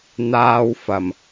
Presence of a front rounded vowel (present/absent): absent